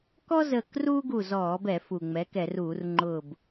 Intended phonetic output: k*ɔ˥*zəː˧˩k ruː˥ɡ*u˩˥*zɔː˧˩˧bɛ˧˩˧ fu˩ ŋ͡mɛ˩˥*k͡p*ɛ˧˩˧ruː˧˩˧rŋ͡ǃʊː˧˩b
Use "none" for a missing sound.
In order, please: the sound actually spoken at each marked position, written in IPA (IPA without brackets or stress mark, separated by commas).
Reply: ɔ˥, u˧˩, k